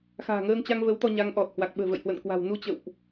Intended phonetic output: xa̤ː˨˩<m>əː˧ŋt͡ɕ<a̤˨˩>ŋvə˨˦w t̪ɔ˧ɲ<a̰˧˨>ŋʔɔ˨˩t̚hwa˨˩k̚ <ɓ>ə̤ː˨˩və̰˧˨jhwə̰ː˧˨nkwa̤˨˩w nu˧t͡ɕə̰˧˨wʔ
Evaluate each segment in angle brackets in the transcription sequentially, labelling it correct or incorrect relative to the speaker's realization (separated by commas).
incorrect, incorrect, incorrect, correct